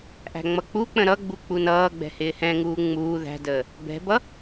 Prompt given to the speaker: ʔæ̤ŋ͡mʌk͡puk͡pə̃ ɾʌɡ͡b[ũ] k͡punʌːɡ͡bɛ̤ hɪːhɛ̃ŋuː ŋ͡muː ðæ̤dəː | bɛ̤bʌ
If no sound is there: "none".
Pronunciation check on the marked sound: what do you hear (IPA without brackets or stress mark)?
u